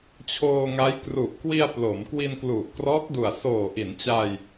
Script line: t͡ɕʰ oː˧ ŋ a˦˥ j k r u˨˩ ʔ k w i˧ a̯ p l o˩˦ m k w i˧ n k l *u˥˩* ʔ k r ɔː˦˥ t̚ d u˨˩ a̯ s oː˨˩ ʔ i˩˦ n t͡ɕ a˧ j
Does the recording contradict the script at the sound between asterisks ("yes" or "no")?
yes